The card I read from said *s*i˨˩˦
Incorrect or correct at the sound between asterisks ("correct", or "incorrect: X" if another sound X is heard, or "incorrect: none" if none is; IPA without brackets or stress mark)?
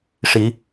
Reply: incorrect: ʂ